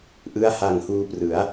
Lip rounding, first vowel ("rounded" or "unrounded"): unrounded